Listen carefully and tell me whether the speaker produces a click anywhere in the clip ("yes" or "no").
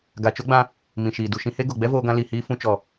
no